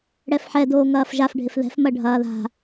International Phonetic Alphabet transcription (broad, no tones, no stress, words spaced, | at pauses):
ɽɛfħɛ doːŋɐːfʒaf ɖʱɪfðɛ̤f mɐɖʱɐːða̤